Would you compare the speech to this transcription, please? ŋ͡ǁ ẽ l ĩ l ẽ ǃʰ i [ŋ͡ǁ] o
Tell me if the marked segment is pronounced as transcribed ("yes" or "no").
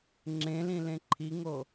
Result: no